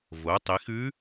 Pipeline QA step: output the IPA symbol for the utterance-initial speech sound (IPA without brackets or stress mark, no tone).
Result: v